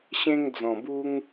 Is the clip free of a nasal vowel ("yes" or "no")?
no